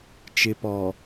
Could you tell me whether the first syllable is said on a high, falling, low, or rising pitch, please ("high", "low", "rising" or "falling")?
low